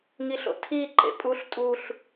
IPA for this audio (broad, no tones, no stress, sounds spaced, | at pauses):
ŋ i ɬ o̰ tʰ i ǃ ḛ pʼ u ɬ tʼ u ɬ